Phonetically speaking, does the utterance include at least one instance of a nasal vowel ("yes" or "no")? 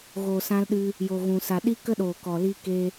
yes